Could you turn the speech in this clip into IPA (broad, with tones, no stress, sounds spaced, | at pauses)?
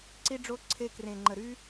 ǀ i˧ ɖ͡ʐ o˧ ǀʰ e˧ k r ẽ˨ ŋ͡ǃ ə˨ ɾ y˧